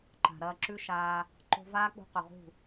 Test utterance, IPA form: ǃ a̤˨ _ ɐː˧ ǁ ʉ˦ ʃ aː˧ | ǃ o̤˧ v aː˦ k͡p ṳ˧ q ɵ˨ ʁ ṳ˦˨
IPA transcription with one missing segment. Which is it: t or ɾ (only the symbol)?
ɾ